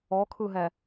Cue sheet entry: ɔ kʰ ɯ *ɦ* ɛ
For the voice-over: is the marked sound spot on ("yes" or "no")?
yes